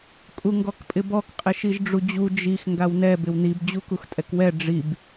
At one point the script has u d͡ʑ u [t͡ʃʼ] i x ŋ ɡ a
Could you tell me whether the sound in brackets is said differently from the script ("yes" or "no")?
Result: yes